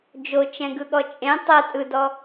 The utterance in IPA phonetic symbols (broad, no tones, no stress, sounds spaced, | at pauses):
d͡ʒ o t͡ʃ ɛ̃ ɡ ɯ ɠ ɔ t͡ʃʼ ẽ tˤ ɜ tʼ ɯ d ɔ